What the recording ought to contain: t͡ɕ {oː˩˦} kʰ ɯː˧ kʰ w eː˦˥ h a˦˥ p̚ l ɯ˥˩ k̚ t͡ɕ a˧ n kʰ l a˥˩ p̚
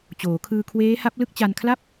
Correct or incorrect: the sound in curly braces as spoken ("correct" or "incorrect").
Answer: correct